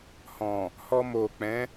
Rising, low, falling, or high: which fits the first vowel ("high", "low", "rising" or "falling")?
low